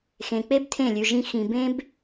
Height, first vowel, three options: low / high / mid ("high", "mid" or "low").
mid